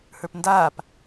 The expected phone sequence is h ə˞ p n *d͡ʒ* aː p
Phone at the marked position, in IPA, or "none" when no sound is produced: d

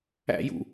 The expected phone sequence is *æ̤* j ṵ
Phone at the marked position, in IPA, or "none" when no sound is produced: æ̰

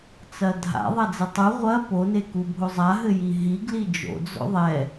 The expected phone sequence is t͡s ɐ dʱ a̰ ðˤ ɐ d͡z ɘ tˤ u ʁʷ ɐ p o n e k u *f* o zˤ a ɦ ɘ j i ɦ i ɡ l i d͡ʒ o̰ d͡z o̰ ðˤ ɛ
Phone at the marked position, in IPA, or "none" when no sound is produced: bʱ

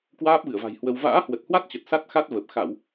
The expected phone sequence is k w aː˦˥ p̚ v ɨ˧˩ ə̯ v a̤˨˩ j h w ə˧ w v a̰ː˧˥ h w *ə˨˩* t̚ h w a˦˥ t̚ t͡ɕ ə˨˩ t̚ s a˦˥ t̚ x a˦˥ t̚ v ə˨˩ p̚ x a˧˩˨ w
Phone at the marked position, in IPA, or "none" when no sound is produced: ə˨˩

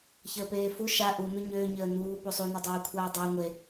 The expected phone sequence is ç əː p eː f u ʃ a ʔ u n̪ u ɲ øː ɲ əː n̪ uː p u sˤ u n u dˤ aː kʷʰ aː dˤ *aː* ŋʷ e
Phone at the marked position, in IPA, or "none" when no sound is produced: əː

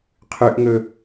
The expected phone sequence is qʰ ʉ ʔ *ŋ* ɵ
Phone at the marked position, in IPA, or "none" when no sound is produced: ŋ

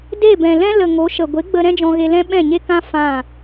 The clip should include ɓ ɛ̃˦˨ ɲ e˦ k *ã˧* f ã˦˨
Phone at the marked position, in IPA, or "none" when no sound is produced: ã˦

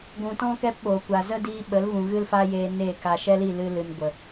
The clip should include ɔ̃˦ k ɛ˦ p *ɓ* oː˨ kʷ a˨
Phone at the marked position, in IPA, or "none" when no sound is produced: ɓ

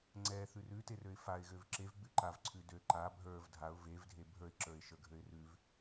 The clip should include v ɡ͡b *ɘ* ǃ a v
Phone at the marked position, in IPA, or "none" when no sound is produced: ʉ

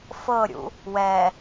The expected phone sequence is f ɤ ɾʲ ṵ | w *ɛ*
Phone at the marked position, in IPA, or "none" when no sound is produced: ɛ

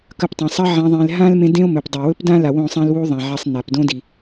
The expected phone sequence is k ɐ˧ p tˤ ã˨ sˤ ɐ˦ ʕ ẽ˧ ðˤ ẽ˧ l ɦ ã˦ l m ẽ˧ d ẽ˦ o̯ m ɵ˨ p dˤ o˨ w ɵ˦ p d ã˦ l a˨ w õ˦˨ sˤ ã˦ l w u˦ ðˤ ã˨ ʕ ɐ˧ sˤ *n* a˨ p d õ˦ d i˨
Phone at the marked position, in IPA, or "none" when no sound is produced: n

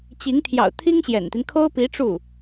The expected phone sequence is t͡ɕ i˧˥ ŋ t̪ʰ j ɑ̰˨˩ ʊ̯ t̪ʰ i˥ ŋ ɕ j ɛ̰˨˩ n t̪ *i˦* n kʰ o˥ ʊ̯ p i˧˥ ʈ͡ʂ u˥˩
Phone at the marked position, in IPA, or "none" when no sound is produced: i˦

